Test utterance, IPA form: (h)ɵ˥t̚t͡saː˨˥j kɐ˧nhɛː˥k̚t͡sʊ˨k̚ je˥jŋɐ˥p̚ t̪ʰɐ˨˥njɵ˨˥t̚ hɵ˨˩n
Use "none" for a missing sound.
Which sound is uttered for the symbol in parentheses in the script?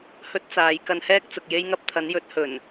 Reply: h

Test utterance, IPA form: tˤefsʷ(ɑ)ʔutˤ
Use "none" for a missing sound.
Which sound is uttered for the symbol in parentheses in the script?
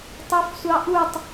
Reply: ɑ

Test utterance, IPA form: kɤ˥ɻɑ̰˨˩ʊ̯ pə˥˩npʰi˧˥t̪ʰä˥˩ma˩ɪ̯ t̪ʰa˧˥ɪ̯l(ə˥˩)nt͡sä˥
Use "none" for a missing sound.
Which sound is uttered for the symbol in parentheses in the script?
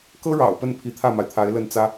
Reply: ə˥˩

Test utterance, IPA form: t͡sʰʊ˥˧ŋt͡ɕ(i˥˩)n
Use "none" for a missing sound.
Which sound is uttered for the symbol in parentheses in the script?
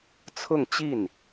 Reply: i˥˩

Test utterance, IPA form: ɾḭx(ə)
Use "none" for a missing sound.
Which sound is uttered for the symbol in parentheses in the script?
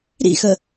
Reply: ə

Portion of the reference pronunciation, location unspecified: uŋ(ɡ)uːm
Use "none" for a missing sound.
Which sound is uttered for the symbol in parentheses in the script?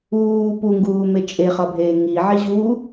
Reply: ɡ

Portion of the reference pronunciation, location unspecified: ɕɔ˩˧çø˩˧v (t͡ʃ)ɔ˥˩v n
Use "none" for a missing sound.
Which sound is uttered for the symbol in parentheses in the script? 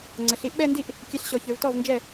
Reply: t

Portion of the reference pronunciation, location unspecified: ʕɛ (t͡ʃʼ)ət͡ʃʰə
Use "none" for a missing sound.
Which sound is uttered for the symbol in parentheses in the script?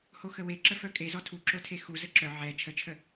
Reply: t͡ʃʰ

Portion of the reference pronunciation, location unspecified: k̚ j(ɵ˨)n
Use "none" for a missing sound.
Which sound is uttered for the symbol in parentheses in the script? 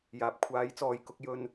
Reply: ɵ˧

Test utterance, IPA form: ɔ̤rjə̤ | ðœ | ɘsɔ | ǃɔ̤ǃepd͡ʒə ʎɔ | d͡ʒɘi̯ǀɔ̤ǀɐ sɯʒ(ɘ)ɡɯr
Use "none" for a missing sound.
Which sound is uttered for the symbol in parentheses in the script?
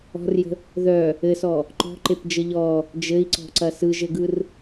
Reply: ɘ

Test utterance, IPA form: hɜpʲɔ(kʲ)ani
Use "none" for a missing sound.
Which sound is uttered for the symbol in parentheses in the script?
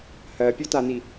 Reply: t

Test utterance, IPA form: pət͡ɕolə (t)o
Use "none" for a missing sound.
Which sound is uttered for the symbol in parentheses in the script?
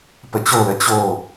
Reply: t͡ɕ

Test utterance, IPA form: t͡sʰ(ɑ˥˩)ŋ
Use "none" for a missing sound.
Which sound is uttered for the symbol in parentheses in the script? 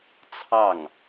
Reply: ɑ˥˩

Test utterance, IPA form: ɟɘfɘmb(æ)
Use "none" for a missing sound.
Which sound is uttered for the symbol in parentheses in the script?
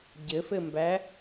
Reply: æ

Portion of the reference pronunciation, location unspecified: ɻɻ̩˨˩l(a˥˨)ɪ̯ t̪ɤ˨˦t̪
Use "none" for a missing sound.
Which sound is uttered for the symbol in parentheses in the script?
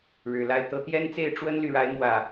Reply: a˥˨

